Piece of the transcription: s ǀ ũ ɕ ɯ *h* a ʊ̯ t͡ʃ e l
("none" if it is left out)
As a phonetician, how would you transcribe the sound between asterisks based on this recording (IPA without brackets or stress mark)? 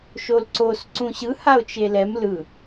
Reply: h